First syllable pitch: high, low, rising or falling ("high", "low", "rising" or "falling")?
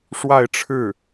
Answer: falling